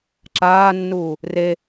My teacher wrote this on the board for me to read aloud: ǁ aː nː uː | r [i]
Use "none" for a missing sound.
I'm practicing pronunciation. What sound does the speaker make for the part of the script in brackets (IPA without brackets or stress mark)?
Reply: e